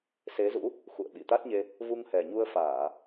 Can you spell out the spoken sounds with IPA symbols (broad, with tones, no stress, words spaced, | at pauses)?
se˨˦zṵ˧˥ | xṵ˧˨ə̯ɓi˧˩ t̪a˦˥t̚ɲe˧ | vu˧ŋhɛ˨˩ɲu˧ə̯faː˧˩˨